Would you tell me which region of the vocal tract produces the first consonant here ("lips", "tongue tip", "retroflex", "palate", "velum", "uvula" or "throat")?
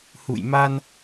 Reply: throat